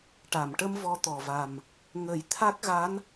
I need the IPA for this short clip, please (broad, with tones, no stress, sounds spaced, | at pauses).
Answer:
ʈ a˨˩˨ m ʈ ə˧ m v ɔ˧ t̪ ɔ˨˩ v a˨˩ m | ŋ ə˨˩˦ j t̪ʰ a˦˥ k̚ ɣ a˧˥ n